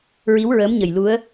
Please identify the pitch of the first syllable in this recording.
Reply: rising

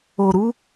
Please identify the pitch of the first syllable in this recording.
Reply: low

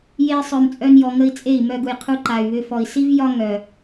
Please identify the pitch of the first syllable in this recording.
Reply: high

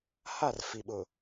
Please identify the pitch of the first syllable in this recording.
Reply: falling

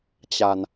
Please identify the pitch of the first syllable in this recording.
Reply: low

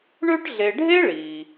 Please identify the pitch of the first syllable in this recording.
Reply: high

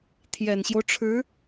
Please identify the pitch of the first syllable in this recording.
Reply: low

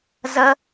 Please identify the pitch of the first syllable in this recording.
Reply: high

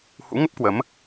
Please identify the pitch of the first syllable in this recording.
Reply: rising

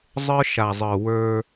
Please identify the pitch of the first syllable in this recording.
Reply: high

